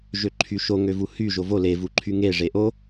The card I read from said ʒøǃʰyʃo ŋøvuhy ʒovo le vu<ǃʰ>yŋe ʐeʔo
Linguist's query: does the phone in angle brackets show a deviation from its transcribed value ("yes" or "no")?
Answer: no